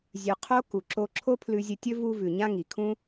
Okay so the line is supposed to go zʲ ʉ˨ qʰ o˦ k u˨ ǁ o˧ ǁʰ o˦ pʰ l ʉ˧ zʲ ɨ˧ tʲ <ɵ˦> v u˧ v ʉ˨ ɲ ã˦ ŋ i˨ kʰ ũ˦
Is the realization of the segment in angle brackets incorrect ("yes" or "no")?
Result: no